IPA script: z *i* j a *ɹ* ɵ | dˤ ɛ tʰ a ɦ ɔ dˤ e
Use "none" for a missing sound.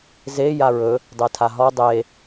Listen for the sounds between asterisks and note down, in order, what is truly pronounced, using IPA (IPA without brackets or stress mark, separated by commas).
e, ɹ